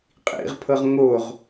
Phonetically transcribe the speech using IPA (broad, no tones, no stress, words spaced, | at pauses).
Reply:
qʼḭʁpʰɤʁ ŋoʁ